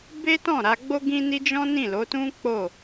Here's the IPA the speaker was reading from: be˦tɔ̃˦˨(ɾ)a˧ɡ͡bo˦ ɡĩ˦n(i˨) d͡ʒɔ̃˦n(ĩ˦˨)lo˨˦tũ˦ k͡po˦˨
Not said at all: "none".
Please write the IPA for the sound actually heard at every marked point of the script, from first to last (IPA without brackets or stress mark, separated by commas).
ɾ, i˦, ĩ˦˨